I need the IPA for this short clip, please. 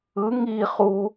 ɯ ŋ i χ u

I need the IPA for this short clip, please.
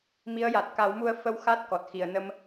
m i˧˥ ə̯ j a˨˩ t̚ k a˨˩˦ w m u˧ ə̯ f ə˧˥ w x a˦˥ t̚ k ɔ˨˩ t̚ x i˨˩˨ ə̯ n ə˧ m

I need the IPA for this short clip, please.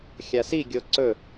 xʲ a s i ɡʲ o ǀ ɵ

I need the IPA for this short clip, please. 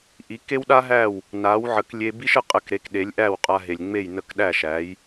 ʔ i˩˥ k e˥ w ɗ a˥ ɦ æ˥˩ w | n a˩˥ w ʕ ə˩˥ k lʲ e˧ b i˥ ʃ ə˧ qʼ ə˧ k ɾ e˩˥ k ɗ e˩˥ lʲ ʔ æ˥˩ w qʼ a˧ ɦ e˩ lʲ ŋ͡m e˥˩ j n ə˥˩ k ɗ æ˥˩ ʃ æ˩˥ j

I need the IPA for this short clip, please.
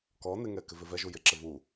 k ɔ n ɪ ŋ ɛ k ɪ v ɪ v ɛ ʒ u j ɪ ǁ ɪ v u

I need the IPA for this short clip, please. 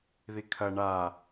ð i kʰ ɐ ɳ a

